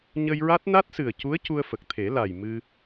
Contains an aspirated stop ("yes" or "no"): yes